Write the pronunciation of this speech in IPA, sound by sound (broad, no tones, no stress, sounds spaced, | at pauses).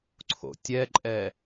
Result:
ǀʰ o̰ tʲ ɛ ǃʼ ɛ